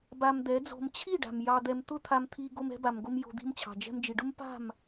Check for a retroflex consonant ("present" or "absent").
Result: present